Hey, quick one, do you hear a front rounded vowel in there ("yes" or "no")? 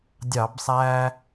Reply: no